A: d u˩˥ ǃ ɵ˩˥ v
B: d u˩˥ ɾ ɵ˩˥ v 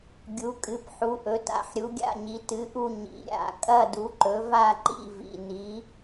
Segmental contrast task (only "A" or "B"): A